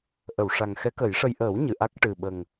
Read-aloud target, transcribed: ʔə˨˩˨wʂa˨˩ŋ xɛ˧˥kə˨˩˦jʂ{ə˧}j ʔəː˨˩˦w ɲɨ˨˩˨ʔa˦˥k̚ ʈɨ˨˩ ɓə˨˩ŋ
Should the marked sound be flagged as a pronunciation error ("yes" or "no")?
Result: no